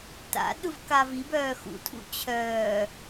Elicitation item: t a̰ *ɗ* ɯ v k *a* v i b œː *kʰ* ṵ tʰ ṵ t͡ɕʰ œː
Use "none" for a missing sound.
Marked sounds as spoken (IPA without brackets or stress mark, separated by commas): ɗ, a, x